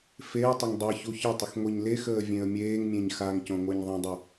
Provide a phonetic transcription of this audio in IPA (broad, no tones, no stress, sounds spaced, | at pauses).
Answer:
f e ə̯ tˤ ə ŋ dˤ i ç u ç ə tˤ ə x ŋʷ i ɲ l e x əː vʲ ẽ ə̯ mʲ eː ŋ mʲ ẽ ɲ x a ŋ c õ ŋʷ e ɲ ðˤ ə̃ dˤ u